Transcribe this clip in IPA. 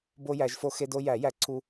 b o˦ j æ˨˩˦ ʒ f o˦ x e˦ d o˦ j æ˨˩˦ j æ˨˩˦ ǀʰ u˦

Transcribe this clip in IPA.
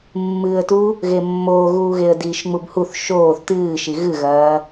mː ɨː ə̯ t u | ɣ e mː oː ɣ uː ɣ e ə̯ d iː ʃ ŋ͡m u b h u θ ʃ oː θ t ɨː ʃ i ɣ ɨ ɣ ɐː

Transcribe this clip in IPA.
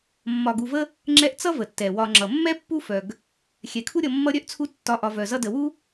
mː ɒ˨ ɡ u˨ v ə˦ | ŋ͡ǁ ɛ˦ ʔ t͡s ʌ˦ v ə˩ tː ɛ˩ w ɒ˨ ŋ͡ǁ ʌ˩ mː ɛ˥ pː u˦ f œ˩ ɡ | xʲ ɛ˩ kʰ u˦ ɾʲ ʌ˨ mː ʌ˦ ɾʲ œ˥ ʔ t͡sʰ u˦ tː ɒ˨ ʔ ɒ˨ v œ˩ z ʌ˦ d ə˨ w u˥

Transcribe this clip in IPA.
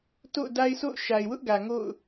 t o̰˦˨ ʊ̯ d a˦ ɪ̯ sʰ o̰˦˨ ʊ̯ ʃ a˨ ɪ̯ w ʊ˦ ʔ ɡ ä˨ ŋ o̰˦˨ ʊ̯

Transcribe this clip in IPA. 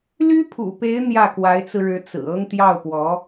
l y˥ pʰ ṵ˨˩ p e˧˥ ɪ̯ n̪ j ä˥˩ k w a˧˥ ɪ̯ t͡s ɹ̩˧ ɻ ɻ̩˧˥ t͡s ɹ̩˨˩ ɤ˥ ŋ t̪ j ɑ˥˩ ʊ̯ p w ɔ˧˥

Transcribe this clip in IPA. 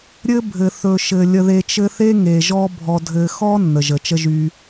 ɾʲ ɘ˦ bʱ ɘ˩ θ ɵ˩ ʃ ɘ˩ lʲ ə˨ ð e˨ t͡ʃ ɘ˦ θ e˥ ŋ e˩ ʒ ɔ˦ bʱ ɔ˨ dʱ ɘ˨ x ɔ˥ nː ə˩ ʒ ə˩ t͡ʃ ə˦ ʒ y˨

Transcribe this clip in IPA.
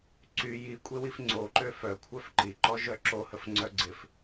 ǀ y j i kʷʼ e w i f ŋ͡ǀ o ǃ ø f œ kʷʰ œ f ǃ i ǃ ɔ ʒ œ ǁ o h ə f ŋ͡ǀ œ ɡ͡ǀ ɪ f

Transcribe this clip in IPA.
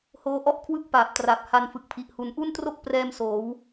h oː˧ ʔ ɔ˥˩ ʔ kʰ w ɯ˥˩ k̚ p aː˨˩ p̚ t r a˨˩ p̚ h a˧ n f ɯ˨˩ k̚ pʰ i˨˩ ʔ h u˧ n ʔ u˥˩ n t r o˥˩ k̚ p r ɛː˧ m s oː˩˦ w

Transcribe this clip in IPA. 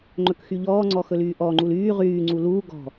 ŋ͡ǃ ɵ k x y ʎ ɔː ŋ͡ǀ ɔ x ɵ l yː ʔ ɔ ŋ͡ǃ u l yː ʁ yː ŋ͡ǀ u l uː ɡ ɔ̤

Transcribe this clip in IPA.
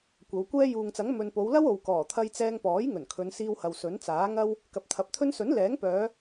kʷ ɐ˨˧ w kʷ ɛː˥ j uː˨ ŋ t͡s ɐ˨˥ ŋ m ɵ˨ n p o˨˧ w l ɐ˥ w o˨ w k ɔː˨˩ t̪ʰ ɐ˧ j t͡s ɛː˧ ŋ p ɔː˨˥ j ŋ ɵ˨˩ n kʰ ɵ˨˧ n s iː˧ w h ɐ˨ w s ɵ˨˥ n t͡s aː˨˥ ŋ ɐ˥ w | k ɐ˨ p̚ t̪ʰ ɐ˨ p̚ t̪ʰ ɵ˥ n s ɵ˨˥ n l ɛː˨˥ ŋ p œː˨˧

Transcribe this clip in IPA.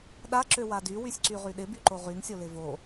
ɗ a ǁ ø w a d y w y sʲ ǀ y ʁ y ɗ ɪ b y ǃ o ʁ y ŋ sʲ o l ɪ v o

